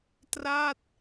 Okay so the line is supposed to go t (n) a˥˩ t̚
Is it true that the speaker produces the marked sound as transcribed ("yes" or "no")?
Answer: no